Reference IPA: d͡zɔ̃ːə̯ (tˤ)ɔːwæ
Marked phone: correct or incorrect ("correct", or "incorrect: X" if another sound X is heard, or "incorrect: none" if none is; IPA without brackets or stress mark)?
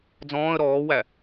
incorrect: ɾ